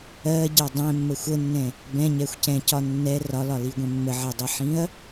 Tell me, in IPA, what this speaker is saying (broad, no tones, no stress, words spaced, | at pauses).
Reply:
ɜɟʌ dˤɛ̃mːə xʷənːɛ̃ | bɛ̃ɲɛxʷcɛ̃cɒ nːɛ rɒlɒliɡʷɛ̃ mːəʕɛdˤɛħĩɐ̯